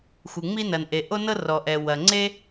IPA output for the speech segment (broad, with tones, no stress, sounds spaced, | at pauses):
xʷ ɯ˩ ŋ͡m i˥ n ɐ˩ n ʔ e˩ ʔ o˥ n ɤ˥ r ɔ˩ ʔ ɛ˩ w ɐ˩ ŋ͡ǀ e˥